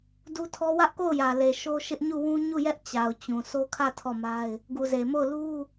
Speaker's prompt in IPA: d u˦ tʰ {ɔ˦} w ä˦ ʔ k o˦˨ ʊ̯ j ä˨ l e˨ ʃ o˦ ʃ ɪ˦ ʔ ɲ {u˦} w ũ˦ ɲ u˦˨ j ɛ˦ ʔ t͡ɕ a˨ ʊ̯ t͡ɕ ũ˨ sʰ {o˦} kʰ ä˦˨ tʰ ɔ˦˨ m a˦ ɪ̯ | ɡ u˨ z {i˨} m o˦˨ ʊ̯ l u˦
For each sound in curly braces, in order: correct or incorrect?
correct, incorrect: u˦˨, correct, incorrect: e˨

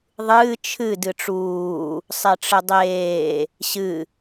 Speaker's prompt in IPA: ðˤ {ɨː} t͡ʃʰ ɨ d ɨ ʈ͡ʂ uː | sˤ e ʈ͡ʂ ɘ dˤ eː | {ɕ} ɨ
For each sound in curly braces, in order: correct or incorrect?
correct, correct

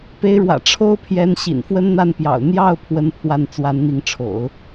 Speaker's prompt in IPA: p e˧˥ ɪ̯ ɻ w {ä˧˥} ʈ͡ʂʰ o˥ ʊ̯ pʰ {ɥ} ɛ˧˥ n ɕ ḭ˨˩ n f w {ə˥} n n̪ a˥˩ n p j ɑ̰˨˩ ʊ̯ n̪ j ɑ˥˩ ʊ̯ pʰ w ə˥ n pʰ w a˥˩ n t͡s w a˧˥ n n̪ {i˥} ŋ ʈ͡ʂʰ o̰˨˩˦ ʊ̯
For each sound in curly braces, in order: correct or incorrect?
incorrect: ä̰˨˩, incorrect: j, correct, incorrect: i˧˥

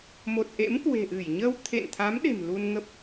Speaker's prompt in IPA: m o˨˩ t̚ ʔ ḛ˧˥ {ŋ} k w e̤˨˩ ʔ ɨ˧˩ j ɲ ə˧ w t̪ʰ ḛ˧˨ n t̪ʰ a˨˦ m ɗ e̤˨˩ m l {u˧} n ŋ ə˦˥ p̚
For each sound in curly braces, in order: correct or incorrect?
incorrect: m, correct

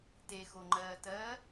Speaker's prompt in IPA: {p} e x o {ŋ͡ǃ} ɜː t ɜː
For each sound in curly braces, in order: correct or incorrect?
incorrect: t, correct

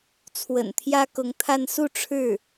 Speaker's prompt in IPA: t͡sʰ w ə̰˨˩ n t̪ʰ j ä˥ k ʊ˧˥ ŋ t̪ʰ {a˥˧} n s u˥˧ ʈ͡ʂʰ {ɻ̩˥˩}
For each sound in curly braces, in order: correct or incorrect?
correct, correct

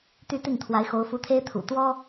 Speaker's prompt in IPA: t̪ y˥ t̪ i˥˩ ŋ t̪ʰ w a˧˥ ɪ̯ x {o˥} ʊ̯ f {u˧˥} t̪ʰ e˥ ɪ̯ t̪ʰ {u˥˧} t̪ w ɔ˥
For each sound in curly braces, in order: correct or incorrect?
incorrect: o˧˥, correct, incorrect: ṵ˨˩

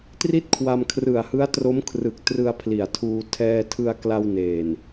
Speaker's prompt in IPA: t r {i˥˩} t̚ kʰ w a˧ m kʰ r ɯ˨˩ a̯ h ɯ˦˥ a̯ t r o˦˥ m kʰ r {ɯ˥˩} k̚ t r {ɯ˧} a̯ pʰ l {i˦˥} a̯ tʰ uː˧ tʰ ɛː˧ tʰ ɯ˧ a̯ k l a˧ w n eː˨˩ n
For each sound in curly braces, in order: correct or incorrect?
correct, incorrect: ɯ˨˩, correct, incorrect: i˨˩

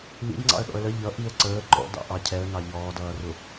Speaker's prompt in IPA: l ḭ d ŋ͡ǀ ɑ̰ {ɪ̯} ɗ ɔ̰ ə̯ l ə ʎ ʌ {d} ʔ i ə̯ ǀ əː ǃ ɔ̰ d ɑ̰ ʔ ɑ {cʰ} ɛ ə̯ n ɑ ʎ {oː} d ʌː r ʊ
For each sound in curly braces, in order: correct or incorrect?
incorrect: ə̯, incorrect: none, correct, incorrect: ɔː

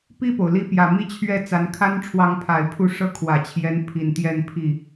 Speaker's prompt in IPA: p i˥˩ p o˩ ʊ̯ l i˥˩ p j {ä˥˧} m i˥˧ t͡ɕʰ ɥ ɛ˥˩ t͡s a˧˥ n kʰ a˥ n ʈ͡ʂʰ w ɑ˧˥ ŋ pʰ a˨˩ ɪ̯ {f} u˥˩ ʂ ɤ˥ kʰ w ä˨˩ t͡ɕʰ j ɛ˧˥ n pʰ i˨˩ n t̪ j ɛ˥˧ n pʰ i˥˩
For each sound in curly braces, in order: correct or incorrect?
incorrect: ä˨˩, incorrect: pʰ

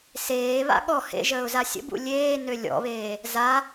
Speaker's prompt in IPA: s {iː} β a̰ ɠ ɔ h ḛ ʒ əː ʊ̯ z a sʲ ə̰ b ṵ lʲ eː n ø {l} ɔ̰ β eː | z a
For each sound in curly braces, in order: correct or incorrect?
incorrect: eː, incorrect: lʲ

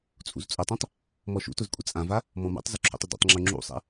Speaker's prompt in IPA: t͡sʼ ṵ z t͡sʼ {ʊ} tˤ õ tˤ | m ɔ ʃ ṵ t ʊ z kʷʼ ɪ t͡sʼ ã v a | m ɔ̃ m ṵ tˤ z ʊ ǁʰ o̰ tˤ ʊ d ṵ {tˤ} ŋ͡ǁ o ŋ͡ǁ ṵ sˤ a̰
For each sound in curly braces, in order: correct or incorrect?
correct, correct

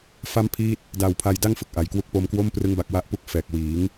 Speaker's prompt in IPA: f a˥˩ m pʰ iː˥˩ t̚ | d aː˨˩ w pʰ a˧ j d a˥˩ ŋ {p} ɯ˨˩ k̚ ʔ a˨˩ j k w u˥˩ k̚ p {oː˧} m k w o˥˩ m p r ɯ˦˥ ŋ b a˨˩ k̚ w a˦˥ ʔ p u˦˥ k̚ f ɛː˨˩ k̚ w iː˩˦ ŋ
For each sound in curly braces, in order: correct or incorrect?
incorrect: f, incorrect: o˧

